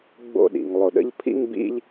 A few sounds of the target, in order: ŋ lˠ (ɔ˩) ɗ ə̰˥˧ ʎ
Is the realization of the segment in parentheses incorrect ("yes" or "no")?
yes